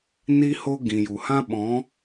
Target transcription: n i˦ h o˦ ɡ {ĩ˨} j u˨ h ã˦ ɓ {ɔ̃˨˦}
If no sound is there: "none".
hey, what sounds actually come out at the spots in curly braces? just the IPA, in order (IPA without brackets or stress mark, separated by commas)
ĩ˨, ɔ̃˨˦